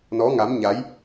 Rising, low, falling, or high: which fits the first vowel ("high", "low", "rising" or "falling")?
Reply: rising